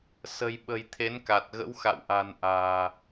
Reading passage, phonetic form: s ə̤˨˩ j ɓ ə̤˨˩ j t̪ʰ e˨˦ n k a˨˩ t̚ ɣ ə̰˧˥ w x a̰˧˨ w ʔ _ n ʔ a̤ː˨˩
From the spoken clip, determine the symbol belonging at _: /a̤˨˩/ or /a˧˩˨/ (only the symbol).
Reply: a̤˨˩